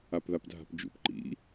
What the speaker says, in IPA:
a p ð a p dʱ a̤ p d͡ʒ ṵ p ǃ ḭ

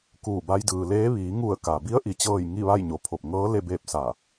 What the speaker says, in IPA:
k uː˧˩ b a˧ j d ɯː˩ l eː˧˥ ʋ iː˩˧ ŋ u˧˩ ə̯ k a˩ b i˧˥ ə̯ ʔ i˩˧ t͡ɕ ɤː˥˨ j ŋ i˥˨ ʋ a˥˨ j ɲ o˩˧ pʰ o˧˩ p̚ ŋ ɤː˧˥ l e˥˨ b eː˥˨ p̚ s a˧˩

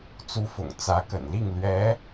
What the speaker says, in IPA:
t͡s u˧˥ f ʊ̰˨˩ ŋ t͡s ä˧˥ k ə̰˨˩ n l i˥˩ ŋ l ɥ ɛ˧˥

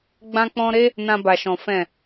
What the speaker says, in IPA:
ɡ͡b ã˦ k͡p ɔ̃˦ ɾ e˦ | n ã˧ b a˨ ʃ ɔ̃˨ f ɛ̃˨

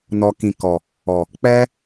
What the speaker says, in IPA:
n ɔ˧ k ĩ˨ k ɔ˨ | ɔ˨ | k͡p ɛ˦

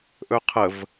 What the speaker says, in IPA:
ʔ ɵ qʰ ə v

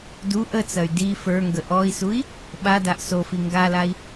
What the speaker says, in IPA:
d u ʔ ə t͡s ɐ y̯ d i f ə˞ ŋ ɡ ə ʔ ɔ i̯ s u i̯ | ɓ a d a ʔ s o f i ŋ ɡ a l a i̯

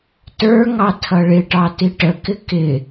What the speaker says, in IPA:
t ə˞ ŋ ɑ tʰ ʌ ɭ ɪ ʈ ɑ t i ʈ ə k ɪ k ɪ

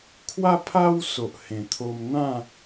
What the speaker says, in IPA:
kʰ w a˦ pʰ a˦ w s o˨ ʔ h ẽ˨˩ t̪ʰ o˧ m n̪ ã˥˧

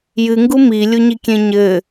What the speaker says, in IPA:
j ɨ ŋ ɡ u m i lʲ u ɲ i kʲ ẽ ɲ ɘ

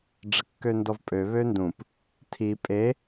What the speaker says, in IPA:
ɖ͡ʐ ə kː ø n d ɔ v pʼ ø β ø n d ũ p | tʰ i pʼ e

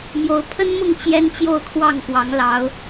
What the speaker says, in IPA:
m j o˧˥ ʊ̯ pʰ ə˥ n m ʊ˥˩ ŋ t͡ɕ j ɛ˥ n t͡ɕ j o˥˧ ʊ̯ kʰ w ɑ˥˩ ŋ k w ɑ˧˥ ŋ l ɑ˧˥ ʊ̯

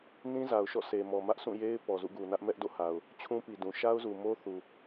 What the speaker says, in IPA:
n ĩ˦ z a˨ ʊ̯ ʃ ɔ̰˦˨ s e˨ m ɔ˨ m ä˦ ʔ s ũ˦˨ j e˦ ɪ̯ p ɔ˨ z ṵ˦˨ ɡ u˨ n ä˦ ʔ m ɛ˦ ʔ d o̰˦˨ h a˨ ʊ̯ | t͡ɕʰ ũ˦ p i˨ d ũ˨ ʃ a˦ ʊ̯ z u˨ m o˦ θ u˨

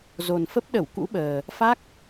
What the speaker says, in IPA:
z o˨˩ n f ə˦˥ p̚ ɗ ə˧˩ w k ṵ˧˥ ɓ əː˨˩ | f a˦˥ k̚

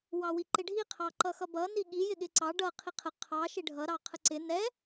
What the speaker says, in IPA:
w ɑ w i ǃ ɪ ɖʱ i qʰ ɑ ǃ ʌ x ʌ b ʌ n i ɠ i j ɪ ɠ ɪ ǀ ɑ ɖ ʌ qʰ i qʰ ə qʰ ɑ ʃ ɪ ɖʱ ʌ ɾ ɑ qʰ ə ǀ ɪ n ɛ

